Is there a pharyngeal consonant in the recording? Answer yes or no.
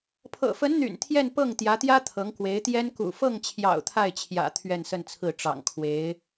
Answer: no